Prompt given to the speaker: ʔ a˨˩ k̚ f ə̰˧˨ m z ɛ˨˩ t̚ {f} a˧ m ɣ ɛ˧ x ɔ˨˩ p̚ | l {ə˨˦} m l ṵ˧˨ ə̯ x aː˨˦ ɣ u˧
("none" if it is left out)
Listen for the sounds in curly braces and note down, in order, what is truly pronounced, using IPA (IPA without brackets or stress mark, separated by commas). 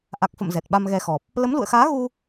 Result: ɓ, ə˨˦